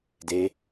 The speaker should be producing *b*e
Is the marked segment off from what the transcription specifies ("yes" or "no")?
yes